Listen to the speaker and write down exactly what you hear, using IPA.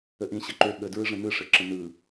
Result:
ə ʔ ĩ ɕ ɘ ǃ ø ɠ ə d ɹ ɯ ʐ ə̃ n ɯ ʂ ɘ ǁ ə̃ n ɯ

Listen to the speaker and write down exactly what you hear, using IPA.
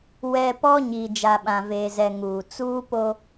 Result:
w ɛ˨ p ɔ˦ ɲ i˨ d͡ʒ a˨ ɓ ã˨ v eː˨ z ɛ˨ ŋ uː˨ t͡s uː˦ p o˦

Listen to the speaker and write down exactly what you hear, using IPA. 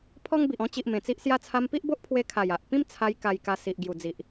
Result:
pʰ ɔ˦ ŋ b i˨ ʔ ɔ̃˧ t͡ɕ i˨ ʔ m ẽ˨˩ t͡s i˦ ʔ s j a˦ t͡sʰ a˧ m p i˦ ʔ b o˦ ʔ pʰ w e˧ kʰ a˨˩ j a˨ ʔ p ĩ˦ m t͡sʰ a˧ j k a˧ j k a˧ s i˨ ʔ ɡ j u˨˩ d͡z i˨ ʔ

